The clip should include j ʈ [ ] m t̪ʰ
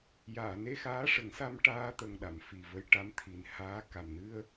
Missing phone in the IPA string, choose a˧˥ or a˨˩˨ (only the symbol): a˧˥